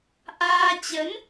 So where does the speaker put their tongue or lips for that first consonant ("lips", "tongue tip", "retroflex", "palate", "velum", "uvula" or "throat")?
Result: throat